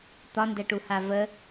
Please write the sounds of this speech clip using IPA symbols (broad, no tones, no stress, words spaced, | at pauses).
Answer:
t̪ɒndɛʈuha və